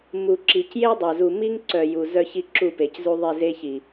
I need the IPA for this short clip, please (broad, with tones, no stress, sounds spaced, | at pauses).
m u˨ ǁ i˨ c j e˦ dˤ œ˨ z u˨ m i˦ ŋ ǀ œ˨ j u˨ z œ˦ ç i˦ ǁ u˦˨ p e˨ c z u˦ ðˤ i˦˨ z e˦ ç i˨